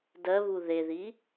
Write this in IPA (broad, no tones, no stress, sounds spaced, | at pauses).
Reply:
d ɜ β u ð e ð i